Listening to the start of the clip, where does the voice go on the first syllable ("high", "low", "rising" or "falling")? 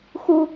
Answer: high